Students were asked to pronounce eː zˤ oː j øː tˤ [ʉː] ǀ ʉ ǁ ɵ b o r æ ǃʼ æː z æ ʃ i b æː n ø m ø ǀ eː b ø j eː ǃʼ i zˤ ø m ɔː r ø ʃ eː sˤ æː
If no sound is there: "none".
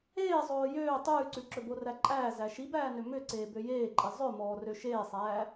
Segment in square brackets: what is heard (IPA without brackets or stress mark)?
ʉː